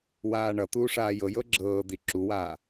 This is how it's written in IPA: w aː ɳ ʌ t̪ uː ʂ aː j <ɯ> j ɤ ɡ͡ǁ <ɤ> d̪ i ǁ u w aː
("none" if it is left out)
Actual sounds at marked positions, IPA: ɤ, ɤː

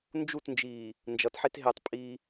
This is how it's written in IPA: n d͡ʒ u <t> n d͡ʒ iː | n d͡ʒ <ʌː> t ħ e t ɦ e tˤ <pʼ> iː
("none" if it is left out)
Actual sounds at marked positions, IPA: t, ʌ, pʼ

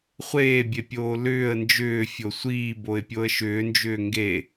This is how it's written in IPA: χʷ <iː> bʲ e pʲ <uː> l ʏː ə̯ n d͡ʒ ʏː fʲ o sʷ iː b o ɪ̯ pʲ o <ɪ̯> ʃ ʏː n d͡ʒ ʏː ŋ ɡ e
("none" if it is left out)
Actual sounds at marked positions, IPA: eː, oː, ə̯

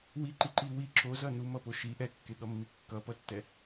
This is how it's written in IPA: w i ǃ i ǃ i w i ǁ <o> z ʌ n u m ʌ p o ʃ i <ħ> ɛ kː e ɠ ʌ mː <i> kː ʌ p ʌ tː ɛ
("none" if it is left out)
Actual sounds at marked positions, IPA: o, ʔ, i

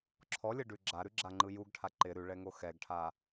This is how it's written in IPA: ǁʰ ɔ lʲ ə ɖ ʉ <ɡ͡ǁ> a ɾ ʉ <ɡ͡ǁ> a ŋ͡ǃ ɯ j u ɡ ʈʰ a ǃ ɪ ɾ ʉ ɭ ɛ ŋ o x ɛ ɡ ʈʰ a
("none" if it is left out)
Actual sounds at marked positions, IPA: ɡ͡ǁ, ɡ͡ǁ

